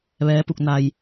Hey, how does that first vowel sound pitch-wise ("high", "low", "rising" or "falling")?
rising